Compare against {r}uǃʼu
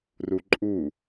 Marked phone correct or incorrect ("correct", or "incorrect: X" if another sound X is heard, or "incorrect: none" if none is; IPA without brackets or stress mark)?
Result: correct